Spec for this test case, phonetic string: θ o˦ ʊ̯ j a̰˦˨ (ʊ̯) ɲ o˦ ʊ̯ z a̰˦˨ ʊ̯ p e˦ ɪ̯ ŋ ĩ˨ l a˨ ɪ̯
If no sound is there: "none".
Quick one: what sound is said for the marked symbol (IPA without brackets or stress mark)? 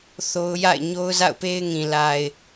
ɪ̯